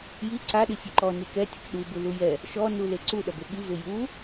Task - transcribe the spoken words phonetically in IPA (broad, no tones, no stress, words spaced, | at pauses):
ji ǀaɗi sʲɨǃɔ nikɛtʲɐk ɗu bulujɛ | ʃɔnule ǀuɗɐbe ɠive ju